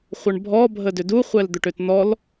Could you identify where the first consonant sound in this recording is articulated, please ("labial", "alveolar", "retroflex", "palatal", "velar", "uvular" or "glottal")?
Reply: uvular